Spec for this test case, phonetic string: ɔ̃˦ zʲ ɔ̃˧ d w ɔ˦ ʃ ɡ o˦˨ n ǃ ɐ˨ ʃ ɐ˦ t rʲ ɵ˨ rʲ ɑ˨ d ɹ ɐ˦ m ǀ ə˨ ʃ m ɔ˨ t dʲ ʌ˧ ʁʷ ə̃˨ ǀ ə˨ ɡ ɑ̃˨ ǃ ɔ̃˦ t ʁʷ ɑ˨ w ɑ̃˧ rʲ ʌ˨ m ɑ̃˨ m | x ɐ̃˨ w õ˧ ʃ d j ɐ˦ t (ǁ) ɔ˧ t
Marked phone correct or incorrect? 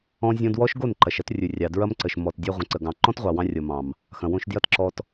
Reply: correct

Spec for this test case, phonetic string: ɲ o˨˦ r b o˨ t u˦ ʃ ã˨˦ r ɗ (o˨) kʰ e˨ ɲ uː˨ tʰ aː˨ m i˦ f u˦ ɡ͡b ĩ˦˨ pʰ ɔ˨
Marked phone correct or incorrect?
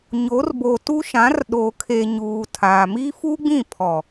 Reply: incorrect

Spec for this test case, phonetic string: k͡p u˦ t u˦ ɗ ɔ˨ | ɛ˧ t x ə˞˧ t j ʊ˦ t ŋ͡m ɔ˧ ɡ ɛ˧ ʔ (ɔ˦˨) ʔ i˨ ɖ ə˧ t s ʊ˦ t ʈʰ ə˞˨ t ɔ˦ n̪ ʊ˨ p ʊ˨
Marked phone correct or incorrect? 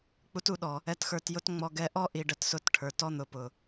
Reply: incorrect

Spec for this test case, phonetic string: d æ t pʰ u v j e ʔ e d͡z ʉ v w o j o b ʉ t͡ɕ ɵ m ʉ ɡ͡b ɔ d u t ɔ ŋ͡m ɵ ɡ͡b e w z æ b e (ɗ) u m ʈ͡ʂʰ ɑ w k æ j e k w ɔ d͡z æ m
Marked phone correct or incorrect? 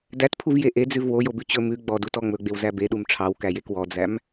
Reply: correct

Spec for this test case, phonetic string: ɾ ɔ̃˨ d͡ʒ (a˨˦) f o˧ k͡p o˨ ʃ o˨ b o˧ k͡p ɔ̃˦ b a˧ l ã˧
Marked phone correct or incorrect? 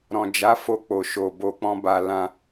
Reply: correct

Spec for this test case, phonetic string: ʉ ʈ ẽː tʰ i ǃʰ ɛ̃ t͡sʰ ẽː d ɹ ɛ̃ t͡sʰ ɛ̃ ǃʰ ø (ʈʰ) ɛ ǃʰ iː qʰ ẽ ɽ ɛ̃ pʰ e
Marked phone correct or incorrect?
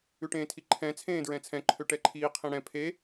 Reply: incorrect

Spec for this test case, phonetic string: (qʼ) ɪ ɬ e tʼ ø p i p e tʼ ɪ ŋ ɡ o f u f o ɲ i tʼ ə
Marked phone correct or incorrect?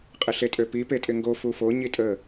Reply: correct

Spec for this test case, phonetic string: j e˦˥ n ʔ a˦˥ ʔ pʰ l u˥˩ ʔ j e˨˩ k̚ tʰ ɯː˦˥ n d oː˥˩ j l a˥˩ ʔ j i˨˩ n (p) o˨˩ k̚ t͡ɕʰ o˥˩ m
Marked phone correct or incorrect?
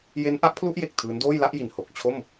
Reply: incorrect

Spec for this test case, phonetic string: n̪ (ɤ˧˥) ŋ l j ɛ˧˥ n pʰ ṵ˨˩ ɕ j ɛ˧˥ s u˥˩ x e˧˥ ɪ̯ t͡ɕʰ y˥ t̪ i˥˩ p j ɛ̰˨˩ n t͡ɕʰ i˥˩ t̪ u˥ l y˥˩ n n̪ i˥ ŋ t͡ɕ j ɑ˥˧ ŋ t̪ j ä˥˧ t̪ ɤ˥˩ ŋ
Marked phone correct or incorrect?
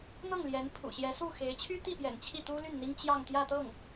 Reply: incorrect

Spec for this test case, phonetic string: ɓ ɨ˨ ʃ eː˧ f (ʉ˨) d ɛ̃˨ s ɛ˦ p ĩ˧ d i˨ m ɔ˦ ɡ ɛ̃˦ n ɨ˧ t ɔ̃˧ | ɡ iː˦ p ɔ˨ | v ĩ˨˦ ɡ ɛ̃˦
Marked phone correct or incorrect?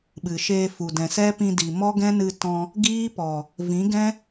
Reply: incorrect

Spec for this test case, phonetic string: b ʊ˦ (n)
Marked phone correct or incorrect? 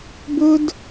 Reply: incorrect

